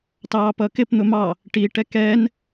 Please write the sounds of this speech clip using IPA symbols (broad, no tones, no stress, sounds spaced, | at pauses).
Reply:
t ɑː p ʌ k ɪ p n̪ ʊ m ɑ | ʈ i ʈ ɛ k ɛː n